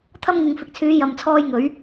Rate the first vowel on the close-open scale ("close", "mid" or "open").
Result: open